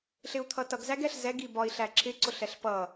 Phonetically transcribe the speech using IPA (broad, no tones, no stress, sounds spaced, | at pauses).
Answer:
ɬ ɪ u̯ t̪ʰ ʌ t ʌ ɡ z æ ɡ ɛ ɬ z ɛ ɡ i b ɒ i̯ ɬ æ ǁ ɪ ǀ ʊ ɬ ɛ ɬ p ʌ